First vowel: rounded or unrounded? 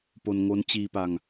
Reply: rounded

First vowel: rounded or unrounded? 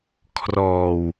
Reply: rounded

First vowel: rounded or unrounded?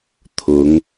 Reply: rounded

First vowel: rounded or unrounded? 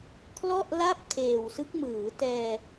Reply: rounded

